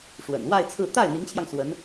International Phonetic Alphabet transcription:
ʂ w ə̰˨˩ n w a˥˧ ɪ̯ t͡sʰ ɹ̩˥˧ t̪ a˥˩ ɪ̯ n̪ i˧˥ ŋ t͡ɕʰ j ɑ˧ ŋ s w ə˧˥ n

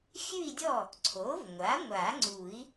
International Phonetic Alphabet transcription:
xʲ ʉ˥˧ i̯ dʲ ɔ˥˩ | ǀʰ o˩˥ v ŋʷ a˩˥ ŋʷ a˨˩˦ ŋ͡ǀ u˨˩˦ i̯

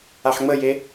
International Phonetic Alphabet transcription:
a ħ ŋ͡m ə j e

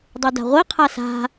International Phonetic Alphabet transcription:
dˤ e d a̤ ʁʷ i qʰ a s a̤

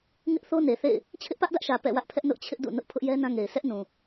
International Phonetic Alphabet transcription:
ŋ ɪ˦ ʔ θ o˦ n e˨ θ ḛ˦˨ ɪ̯ | t͡ɕʰ ɪ˦ ʔ p ä˦ ʔ d ä˦ ʔ ʃ ä˨ p ɛ̰˦˨ w ä˦ ʔ pʰ ɛ˦ ʔ n ʊ˦ ʔ t͡ɕʰ ɪ˦ ʔ d ṵ˦˨ n ʊ˦ ʔ pʰ ʊ˦ ʔ j ɛ˦ n ã˦ ŋ e˨ ɪ̯ sʰ ɛ˦ ʔ n ũ˨

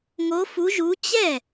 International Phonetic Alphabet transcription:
ŋ o˨˦ f u˨˦ ʒ u˨˦ t͡ɕ ɛ˥˩

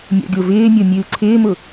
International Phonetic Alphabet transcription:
mʲ ɔ̰ ɡʲ o v ɪː mʲ o mʲ ɨː ǀʰ ɪː m ʊ

